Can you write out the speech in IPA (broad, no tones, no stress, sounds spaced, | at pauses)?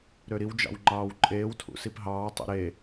ɾ ø ɾ i w d͡ʒ ɑ̰ w ŋ͡ǃ ɑː w ǃʼ eː w tʰ ṵ s i p ɦ ɑː tˤ o̰ ɾ e